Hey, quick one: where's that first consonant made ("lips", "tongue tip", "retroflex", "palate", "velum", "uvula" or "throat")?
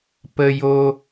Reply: lips